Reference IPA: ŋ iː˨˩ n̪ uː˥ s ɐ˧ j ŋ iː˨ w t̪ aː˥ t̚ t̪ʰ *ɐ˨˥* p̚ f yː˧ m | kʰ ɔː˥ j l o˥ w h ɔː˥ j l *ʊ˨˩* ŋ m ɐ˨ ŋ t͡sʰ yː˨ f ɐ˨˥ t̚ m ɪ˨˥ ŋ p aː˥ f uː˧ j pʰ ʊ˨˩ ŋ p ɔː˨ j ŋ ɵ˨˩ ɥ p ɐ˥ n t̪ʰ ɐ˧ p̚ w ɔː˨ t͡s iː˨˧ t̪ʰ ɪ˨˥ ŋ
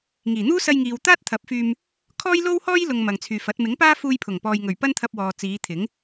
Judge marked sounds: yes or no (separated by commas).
yes, no